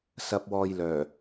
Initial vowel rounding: unrounded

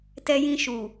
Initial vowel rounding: unrounded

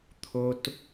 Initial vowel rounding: rounded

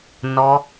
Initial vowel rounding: rounded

